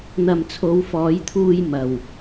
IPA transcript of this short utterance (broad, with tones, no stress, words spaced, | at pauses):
n̪ɐ˨mt͡sʰo˨˧wfɔː˨˧jt̪ʰuː˧j mɐ˨w